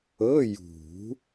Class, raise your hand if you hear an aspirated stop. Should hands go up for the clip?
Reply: no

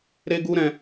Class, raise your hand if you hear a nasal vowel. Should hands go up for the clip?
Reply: yes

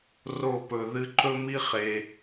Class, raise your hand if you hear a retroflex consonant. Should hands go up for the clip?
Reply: no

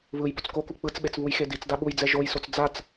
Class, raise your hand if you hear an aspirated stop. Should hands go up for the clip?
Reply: no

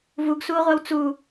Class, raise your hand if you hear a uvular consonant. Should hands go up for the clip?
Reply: yes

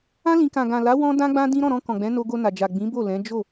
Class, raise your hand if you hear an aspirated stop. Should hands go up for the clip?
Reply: no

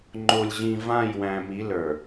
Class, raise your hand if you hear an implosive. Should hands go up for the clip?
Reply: no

